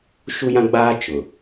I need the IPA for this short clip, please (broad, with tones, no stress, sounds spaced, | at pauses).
ʃ u˦ j ã˦ ɡ͡b aː˦ t͡ʃ ʊ˨